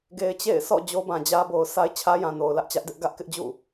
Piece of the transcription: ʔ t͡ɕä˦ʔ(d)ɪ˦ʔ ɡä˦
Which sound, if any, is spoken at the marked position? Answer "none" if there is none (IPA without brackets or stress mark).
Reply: d